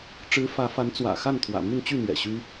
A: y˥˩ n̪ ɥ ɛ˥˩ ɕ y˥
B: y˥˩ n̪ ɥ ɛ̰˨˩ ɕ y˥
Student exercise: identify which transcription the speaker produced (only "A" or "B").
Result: B